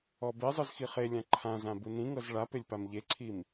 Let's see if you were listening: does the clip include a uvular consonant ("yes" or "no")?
yes